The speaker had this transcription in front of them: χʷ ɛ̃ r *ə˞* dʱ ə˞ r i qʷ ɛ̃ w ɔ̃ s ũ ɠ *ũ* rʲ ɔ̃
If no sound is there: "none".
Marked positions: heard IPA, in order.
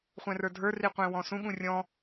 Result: ə˞, ũ

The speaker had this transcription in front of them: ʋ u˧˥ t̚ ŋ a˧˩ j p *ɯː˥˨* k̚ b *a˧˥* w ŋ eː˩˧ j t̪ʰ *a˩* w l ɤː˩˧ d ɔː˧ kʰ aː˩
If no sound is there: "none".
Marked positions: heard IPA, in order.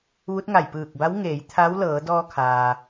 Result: ɯː˧˩, a˧˥, a˧˥

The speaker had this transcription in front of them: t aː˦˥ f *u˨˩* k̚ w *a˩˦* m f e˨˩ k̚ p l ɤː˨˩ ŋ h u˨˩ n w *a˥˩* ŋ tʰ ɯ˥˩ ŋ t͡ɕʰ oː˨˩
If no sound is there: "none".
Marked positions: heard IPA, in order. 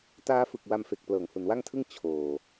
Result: ɯ˨˩, a˧, a˥˩

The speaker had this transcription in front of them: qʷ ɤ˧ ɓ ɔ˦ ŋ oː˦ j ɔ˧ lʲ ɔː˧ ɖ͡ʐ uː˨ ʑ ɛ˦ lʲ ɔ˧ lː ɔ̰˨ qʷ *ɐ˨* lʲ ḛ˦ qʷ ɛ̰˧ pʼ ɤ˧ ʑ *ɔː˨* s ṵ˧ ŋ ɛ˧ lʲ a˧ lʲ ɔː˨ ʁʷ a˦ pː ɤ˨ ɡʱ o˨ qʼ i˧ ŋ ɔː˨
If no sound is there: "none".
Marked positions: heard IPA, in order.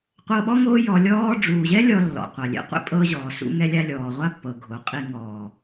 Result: a˨, ɔː˨

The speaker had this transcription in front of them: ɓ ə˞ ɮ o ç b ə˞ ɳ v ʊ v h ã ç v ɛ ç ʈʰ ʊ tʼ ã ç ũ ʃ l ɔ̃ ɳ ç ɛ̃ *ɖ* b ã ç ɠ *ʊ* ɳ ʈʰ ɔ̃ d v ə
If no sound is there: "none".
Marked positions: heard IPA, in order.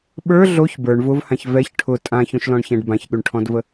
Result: ɖ, ʉ

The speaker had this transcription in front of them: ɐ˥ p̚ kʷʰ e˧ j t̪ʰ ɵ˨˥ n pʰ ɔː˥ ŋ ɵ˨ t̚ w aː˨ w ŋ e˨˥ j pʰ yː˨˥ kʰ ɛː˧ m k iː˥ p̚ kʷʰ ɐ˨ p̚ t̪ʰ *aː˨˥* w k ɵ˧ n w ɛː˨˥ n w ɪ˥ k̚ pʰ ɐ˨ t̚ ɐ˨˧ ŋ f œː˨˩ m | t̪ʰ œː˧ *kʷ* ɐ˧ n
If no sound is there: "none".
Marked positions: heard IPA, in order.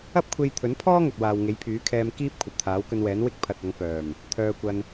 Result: aː˨˥, kʷ

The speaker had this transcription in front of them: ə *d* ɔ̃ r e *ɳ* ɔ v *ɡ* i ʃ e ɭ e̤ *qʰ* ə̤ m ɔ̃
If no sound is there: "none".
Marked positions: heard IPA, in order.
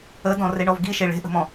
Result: d, ɳ, ɡ, ʔ

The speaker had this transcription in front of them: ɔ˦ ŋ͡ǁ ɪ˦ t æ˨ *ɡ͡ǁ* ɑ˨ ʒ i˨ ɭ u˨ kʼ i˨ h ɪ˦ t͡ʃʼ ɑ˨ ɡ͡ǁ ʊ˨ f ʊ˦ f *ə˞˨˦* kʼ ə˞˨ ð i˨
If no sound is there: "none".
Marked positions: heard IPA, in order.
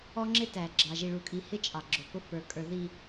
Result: ɡ͡ǁ, ə˞˨

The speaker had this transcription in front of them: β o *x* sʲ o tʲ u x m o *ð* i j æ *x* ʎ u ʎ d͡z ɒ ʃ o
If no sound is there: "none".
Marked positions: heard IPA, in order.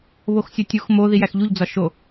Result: x, ð, x

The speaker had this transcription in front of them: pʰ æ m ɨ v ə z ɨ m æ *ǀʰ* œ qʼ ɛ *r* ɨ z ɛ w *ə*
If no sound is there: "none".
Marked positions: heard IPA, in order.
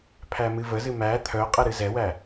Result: t̪ʰ, ɾ, æ

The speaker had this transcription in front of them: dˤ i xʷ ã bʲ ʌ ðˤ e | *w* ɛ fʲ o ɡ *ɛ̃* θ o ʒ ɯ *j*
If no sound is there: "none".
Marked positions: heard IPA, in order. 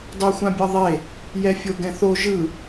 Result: j, ɛ̃, none

